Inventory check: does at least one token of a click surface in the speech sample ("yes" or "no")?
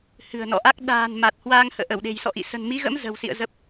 no